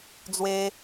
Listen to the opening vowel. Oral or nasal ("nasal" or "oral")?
oral